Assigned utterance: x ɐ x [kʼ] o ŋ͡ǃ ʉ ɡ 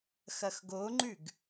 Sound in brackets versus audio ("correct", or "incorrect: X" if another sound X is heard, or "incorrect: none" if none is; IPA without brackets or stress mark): incorrect: ɡ